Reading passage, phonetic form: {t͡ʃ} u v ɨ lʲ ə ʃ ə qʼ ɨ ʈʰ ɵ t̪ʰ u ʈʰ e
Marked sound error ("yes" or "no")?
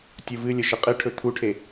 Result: yes